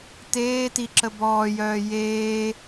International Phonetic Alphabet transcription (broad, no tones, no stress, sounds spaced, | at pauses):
t eː t i ǁ ə b ɔː j œː j eː